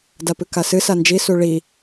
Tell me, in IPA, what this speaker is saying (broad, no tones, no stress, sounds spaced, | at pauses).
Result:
d a p ɨ k a s ɨ s a n d͡ʒ i s u ɭ i